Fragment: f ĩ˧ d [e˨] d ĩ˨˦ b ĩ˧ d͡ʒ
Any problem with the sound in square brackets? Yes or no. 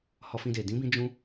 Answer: no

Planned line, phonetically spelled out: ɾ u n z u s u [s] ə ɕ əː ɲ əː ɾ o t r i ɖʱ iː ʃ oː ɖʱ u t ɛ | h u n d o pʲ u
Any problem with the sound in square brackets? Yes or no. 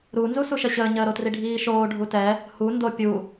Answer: yes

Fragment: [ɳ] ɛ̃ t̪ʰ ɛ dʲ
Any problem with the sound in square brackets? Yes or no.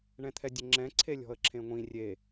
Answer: no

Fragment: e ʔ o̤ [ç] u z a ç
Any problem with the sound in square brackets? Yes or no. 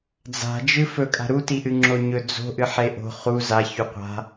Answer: yes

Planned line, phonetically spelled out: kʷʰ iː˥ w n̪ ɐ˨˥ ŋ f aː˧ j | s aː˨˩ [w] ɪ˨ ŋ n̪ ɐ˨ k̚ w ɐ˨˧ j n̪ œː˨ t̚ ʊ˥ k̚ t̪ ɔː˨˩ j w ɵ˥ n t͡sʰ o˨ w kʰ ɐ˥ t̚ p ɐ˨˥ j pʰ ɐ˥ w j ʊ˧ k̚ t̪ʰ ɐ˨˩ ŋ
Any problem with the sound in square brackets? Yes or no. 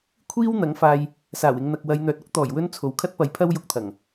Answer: no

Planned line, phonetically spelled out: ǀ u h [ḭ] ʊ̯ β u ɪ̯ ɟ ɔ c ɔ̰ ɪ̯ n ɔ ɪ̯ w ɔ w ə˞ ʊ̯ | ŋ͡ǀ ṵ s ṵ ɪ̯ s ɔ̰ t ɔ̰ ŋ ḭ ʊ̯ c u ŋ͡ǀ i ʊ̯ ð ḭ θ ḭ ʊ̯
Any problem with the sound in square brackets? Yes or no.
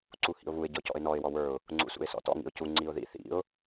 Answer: no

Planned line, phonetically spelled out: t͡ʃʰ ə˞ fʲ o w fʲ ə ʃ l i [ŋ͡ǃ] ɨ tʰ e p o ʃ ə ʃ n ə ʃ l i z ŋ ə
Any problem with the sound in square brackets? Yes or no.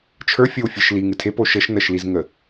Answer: yes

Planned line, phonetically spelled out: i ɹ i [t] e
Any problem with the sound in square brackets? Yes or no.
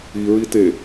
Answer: no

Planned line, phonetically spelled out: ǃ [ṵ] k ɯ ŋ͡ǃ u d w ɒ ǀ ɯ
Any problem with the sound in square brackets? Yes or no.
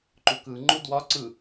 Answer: yes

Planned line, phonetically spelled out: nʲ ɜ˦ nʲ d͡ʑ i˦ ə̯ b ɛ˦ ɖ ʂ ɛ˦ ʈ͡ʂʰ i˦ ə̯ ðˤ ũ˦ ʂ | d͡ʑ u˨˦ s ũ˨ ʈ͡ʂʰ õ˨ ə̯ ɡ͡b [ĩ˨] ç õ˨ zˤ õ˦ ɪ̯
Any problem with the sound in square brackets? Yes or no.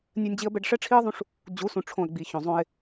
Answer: yes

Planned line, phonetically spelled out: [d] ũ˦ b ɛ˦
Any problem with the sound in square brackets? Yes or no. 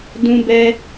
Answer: no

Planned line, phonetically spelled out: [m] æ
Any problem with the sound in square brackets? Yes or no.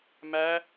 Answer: no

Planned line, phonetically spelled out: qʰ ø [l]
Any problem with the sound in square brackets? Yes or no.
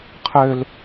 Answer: no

